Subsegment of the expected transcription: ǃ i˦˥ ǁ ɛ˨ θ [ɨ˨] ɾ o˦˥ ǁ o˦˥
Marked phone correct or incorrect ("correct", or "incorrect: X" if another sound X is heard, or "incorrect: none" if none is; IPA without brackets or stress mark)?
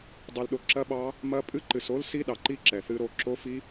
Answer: incorrect: ɨ˦˥